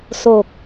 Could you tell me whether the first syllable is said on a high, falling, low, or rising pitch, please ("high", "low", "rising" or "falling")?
low